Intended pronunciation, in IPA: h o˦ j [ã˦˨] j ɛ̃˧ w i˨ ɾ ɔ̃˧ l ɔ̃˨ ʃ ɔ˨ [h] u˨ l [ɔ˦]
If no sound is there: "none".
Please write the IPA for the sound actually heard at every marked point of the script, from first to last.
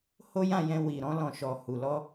ã˦˨, h, ɔ˧

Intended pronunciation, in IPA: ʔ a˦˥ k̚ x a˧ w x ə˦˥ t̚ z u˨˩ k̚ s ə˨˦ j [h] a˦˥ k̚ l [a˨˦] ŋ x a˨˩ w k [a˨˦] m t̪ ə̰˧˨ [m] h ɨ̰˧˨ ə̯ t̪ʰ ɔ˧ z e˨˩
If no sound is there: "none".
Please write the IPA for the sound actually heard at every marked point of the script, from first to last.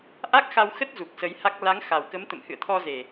h, a˨˦, ə˨˦, m

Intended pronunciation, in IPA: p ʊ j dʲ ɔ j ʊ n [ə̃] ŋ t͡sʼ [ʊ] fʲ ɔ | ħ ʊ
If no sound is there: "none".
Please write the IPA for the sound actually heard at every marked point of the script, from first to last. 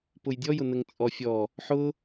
ə, ɔ

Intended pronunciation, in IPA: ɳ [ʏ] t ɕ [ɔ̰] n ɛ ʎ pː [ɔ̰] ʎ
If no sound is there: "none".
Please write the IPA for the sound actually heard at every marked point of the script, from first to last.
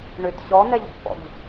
ʏ, ɔ, ɔ̰

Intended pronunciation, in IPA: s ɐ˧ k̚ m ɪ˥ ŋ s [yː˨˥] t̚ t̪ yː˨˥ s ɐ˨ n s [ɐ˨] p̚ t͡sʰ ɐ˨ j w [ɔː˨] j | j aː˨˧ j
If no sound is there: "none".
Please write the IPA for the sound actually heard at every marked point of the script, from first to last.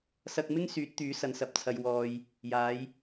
yː˨˥, ɐ˨, ɔː˨

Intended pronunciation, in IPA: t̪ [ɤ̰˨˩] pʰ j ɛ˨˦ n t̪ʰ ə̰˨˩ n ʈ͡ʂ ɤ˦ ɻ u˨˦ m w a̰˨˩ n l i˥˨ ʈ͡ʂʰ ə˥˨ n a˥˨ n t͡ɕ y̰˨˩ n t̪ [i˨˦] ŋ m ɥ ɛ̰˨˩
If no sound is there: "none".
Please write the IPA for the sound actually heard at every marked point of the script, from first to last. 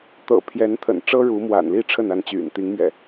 ɤ̰˨˩, i˨˦

